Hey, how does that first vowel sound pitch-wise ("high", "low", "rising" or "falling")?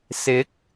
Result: rising